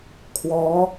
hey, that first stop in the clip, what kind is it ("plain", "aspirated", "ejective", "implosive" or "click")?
aspirated